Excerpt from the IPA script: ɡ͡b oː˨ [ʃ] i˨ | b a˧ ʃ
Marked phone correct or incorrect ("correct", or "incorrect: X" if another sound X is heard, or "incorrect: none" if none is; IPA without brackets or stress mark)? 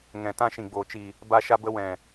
incorrect: t͡ʃ